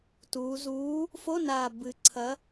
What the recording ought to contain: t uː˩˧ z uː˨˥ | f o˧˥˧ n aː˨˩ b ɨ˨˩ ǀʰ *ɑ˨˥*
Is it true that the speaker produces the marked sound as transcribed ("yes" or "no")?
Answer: no